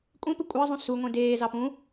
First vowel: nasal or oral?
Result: nasal